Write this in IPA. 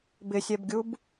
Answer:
b ɪ sʲ ɛ b ɡʲ u b

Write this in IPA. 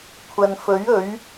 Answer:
kʷʰ ɐ˨ n f ɵ˨˥ ɥ ɵ˨˥ ɥ

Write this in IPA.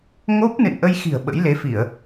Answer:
ŋ o˦˥ p̚ n ɨ̰˧˨ n ʔ ə˧ j x i̤˨˩ ə̯ ɓ ə̰˧˥ j l e˨˦ f i˧˩˨ ə̯

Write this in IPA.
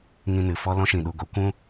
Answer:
ŋ ĩ˧ n ɨ˨ f ɔ˦ l ɔ̃˦ ʃ ĩ˨ ɗ u˧ ɡ o˨˦ kʷ ũ˦

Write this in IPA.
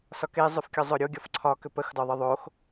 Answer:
s ɒ k e zˤ ʏ f kʲ ɒ zˤ o ɾʲ o ɡʲ ɒ f ǀʰ ɒ k ʏ p ə x d ɒ ðˤ ə ðˤ o x

